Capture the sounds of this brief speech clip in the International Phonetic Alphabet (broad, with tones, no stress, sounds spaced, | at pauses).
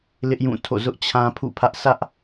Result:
l ɪ˦ ʔ j ũ˦˨ tʰ o̰˦˨ z ʊ˦ ʔ t͡ɕʰ ã˦ pʰ ṵ˦˨ pʰ ä˦ ʔ sʰ ä˦ ʔ